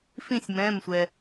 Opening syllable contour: falling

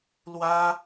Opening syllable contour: high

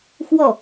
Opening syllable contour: falling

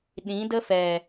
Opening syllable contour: rising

